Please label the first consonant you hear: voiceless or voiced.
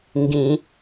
voiced